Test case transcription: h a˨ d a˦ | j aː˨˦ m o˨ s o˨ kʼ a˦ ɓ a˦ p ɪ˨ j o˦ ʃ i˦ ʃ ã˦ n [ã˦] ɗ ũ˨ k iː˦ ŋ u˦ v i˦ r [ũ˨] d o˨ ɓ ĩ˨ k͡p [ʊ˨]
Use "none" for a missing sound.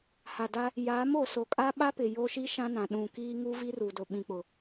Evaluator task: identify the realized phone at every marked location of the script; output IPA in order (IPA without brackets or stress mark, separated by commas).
ã˨, u˨, ʊ˨